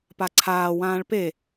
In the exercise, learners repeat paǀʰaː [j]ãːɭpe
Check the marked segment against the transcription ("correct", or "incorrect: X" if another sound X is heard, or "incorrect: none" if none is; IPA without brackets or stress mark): incorrect: w